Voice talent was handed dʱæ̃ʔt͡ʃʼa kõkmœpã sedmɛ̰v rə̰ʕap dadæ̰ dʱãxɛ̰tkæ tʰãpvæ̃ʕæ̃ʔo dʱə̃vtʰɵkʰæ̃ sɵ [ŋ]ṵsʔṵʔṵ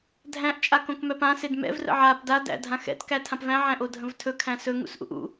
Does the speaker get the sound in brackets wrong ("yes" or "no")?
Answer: no